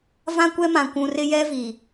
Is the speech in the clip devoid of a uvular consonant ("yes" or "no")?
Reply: yes